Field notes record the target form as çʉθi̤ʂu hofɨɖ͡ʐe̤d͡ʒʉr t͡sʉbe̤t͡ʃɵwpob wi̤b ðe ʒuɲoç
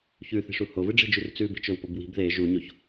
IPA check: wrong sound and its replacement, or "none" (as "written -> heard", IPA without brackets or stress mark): f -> v